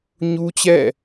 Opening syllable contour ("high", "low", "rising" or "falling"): high